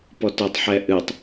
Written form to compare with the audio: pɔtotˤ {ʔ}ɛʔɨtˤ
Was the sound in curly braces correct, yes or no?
no